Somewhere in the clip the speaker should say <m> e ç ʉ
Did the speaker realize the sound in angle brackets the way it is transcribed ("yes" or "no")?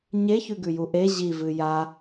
no